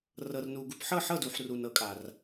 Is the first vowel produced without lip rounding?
yes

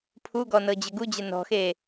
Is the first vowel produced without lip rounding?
no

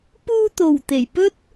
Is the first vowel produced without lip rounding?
no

